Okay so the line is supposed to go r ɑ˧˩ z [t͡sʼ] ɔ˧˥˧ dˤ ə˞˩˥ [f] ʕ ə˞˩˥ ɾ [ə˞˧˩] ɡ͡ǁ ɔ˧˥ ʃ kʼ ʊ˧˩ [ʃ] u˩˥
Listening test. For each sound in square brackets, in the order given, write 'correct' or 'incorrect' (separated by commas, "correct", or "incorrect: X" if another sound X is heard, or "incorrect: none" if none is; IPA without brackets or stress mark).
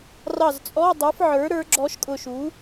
correct, correct, incorrect: ə˞˩˥, correct